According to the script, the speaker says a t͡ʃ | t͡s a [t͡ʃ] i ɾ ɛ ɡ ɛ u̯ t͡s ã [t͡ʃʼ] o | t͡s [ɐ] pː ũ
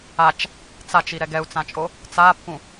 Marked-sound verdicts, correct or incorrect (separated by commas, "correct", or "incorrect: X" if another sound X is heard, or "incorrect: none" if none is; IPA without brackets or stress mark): correct, correct, incorrect: a